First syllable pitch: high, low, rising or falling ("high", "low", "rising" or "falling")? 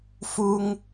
high